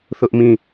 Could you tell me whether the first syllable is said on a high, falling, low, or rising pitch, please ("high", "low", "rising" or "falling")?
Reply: high